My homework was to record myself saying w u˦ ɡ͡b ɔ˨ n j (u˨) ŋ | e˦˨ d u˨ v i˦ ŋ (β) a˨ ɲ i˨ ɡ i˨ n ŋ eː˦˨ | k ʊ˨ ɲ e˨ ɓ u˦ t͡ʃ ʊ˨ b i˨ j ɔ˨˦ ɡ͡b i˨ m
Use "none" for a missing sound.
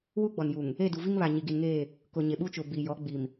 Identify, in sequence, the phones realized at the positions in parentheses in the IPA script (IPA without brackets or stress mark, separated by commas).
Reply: u˨, β